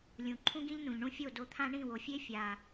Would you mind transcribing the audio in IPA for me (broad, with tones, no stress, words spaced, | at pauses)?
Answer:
lʲũ˨ ǃʰũ˦ɡĩ˦ʎnũ˨ʎ ɳũ˦fʲo˦˨do˧t̪ʰã˦ ɳĩ˦˨wo˨fʲe˦ fʲa˨